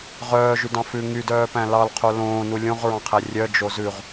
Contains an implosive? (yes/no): no